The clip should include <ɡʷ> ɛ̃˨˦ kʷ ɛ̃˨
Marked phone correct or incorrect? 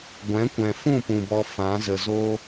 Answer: correct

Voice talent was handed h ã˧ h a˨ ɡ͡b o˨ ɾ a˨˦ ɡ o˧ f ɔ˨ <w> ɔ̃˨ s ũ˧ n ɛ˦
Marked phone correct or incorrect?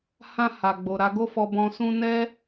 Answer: incorrect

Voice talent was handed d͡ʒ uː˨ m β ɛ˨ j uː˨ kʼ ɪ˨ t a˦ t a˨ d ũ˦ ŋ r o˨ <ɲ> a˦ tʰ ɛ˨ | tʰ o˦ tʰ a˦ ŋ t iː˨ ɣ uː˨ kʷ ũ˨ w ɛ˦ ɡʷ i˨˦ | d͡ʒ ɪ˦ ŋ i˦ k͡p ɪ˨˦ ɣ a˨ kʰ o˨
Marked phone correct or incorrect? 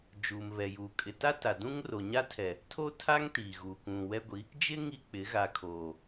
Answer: correct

